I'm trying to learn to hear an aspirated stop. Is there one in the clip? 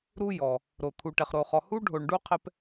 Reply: yes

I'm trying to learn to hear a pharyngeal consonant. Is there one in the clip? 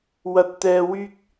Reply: no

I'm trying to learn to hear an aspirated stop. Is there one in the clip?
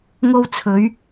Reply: yes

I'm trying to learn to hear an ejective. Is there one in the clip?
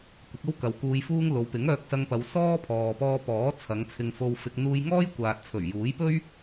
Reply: no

